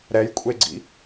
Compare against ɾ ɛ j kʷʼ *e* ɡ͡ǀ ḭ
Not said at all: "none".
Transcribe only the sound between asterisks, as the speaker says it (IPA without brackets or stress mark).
e